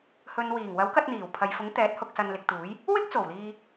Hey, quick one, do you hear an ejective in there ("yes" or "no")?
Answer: no